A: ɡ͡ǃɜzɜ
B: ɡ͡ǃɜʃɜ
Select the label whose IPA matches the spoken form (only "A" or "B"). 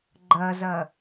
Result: A